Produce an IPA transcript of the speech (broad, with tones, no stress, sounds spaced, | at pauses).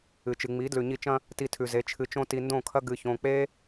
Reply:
ɨ˨ t͡ʃ ɨ˨ ŋ͡m i˨˦ d l ʉ˨ ɲ i˧ t͡ʃ ɐ̃˦ | t i˧ tʰ ʉ˨ z e˨˦ t͡ʃʰ ɨ˧ t͡ʃ õ˦ t i˧ n d õ˦˨ kʰ ɐ˦ ɡ ɨ˨ ç õ˨ k͡p e˦